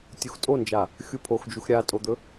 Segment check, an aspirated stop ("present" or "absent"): present